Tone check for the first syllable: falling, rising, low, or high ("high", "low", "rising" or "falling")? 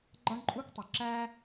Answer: high